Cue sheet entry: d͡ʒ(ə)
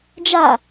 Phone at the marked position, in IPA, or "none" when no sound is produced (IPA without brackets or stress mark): a